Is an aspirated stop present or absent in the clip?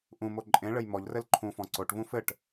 present